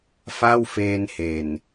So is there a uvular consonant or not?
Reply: no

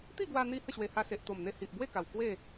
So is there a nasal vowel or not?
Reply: no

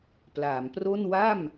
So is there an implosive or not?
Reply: no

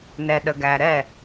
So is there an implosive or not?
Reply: yes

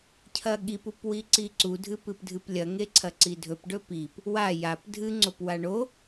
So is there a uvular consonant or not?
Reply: no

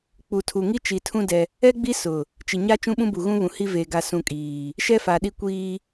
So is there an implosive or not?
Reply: yes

